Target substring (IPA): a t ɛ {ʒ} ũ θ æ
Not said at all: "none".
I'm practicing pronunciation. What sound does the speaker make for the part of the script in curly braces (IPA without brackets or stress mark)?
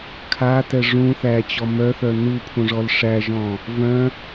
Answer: ʐ